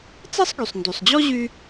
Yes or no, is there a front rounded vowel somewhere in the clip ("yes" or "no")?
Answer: yes